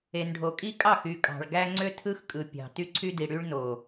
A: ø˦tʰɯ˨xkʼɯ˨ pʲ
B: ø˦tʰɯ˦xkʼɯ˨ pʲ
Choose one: B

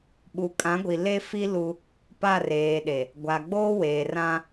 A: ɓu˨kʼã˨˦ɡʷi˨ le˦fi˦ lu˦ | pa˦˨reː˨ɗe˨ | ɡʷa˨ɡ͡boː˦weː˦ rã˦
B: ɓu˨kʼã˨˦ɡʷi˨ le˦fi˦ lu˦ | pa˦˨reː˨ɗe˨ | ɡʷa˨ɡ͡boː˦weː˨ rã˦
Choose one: B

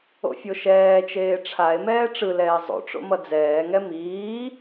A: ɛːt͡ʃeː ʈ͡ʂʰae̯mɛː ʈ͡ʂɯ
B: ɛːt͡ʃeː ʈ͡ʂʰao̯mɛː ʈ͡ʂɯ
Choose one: A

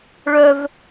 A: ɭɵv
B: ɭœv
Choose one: B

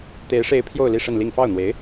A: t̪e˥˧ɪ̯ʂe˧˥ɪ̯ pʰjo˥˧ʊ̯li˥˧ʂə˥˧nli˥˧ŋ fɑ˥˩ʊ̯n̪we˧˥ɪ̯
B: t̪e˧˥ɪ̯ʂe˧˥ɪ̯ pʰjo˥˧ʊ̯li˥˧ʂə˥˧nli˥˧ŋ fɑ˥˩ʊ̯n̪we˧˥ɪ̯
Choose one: B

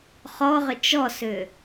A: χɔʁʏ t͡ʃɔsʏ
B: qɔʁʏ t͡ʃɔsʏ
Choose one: A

